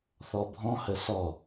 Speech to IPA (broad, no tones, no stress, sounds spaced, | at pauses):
θ ɔ bʱ ɔ̃ h ə s ɔ